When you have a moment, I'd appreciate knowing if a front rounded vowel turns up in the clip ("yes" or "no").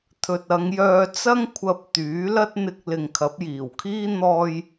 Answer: yes